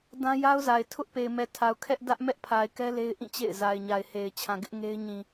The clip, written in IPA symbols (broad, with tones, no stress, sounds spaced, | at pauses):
d ã˦ j a˦ ʊ̯ z a˨ ɪ̯ tʰ ʊ˦ ʔ p e˨ ɪ̯ m ɛ˨ tʰ a˨ ʊ̯ kʰ ɛ˦ ʔ d ä˦ ʔ m ɛ˦ ʔ pʰ a˨ ɪ̯ k ɛ˦ l e˦ ɪ̯ ʔ ĩ˦˨ t͡ɕ ḛ˦˨ ɪ̯ z a˨ ɪ̯ ɲ a˨ ɪ̯ h e˨ ɪ̯ t͡ɕʰ ã˨ ɡ ɪ˦ ʔ ŋ e˦ ɪ̯ ɲ ĩ˨